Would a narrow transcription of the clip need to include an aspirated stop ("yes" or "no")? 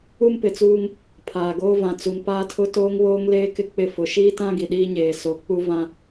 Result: yes